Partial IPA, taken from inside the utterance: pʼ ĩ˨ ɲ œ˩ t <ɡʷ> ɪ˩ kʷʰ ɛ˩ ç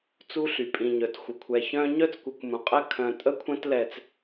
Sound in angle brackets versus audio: incorrect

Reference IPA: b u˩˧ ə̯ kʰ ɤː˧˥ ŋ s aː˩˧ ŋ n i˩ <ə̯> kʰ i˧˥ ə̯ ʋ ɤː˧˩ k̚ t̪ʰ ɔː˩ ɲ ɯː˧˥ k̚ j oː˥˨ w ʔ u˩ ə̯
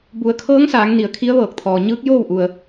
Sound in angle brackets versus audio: correct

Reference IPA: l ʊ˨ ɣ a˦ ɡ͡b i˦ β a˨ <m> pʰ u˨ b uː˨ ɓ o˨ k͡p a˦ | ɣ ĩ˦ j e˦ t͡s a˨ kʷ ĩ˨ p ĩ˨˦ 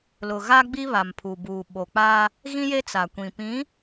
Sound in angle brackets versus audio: correct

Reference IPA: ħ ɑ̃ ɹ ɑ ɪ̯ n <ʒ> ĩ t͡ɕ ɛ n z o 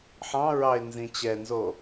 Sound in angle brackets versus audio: incorrect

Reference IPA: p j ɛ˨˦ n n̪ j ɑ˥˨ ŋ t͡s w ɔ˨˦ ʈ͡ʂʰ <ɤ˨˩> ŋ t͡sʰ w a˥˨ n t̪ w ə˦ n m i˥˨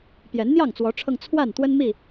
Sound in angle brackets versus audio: incorrect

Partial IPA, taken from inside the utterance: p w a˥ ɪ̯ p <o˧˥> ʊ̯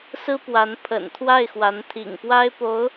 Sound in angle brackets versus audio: correct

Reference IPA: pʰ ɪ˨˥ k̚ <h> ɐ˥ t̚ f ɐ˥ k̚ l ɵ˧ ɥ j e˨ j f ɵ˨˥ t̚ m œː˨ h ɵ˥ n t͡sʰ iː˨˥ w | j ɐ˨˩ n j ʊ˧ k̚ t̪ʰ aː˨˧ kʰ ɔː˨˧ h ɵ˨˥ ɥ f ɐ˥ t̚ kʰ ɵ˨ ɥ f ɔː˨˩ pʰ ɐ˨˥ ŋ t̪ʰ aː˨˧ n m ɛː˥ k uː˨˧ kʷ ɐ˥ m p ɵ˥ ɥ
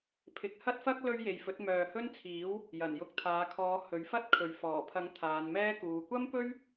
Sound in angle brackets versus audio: correct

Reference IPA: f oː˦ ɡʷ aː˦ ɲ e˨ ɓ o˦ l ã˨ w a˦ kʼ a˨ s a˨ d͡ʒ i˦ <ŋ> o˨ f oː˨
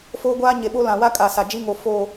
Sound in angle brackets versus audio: correct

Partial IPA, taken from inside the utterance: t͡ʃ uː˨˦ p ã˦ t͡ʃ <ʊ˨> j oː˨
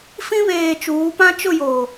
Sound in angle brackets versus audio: incorrect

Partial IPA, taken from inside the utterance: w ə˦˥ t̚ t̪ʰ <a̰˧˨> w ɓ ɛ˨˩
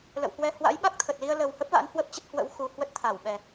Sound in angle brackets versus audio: incorrect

